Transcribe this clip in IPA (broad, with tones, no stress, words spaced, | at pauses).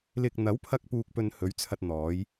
lɪ˨k̚ n̪ɐ˨˥wpʰɐ˧k̚ puː˧k̚pɵ˧nhɵ˨˥ɥt͡sʰɐ˧t̚ n̪ɔː˨˧j